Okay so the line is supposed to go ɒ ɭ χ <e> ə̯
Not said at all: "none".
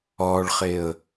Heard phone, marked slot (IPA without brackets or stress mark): e